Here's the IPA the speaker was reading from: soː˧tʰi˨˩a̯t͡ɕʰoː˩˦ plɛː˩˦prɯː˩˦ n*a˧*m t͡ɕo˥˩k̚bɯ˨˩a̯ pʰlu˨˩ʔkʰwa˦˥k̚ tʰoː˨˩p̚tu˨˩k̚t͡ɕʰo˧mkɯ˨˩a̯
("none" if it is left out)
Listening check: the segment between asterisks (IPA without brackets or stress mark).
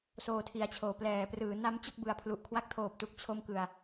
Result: a˦˥